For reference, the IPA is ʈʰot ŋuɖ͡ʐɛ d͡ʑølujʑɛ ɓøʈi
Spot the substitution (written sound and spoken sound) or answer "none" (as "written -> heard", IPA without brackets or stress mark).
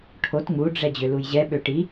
none